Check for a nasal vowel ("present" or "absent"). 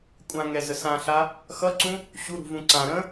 present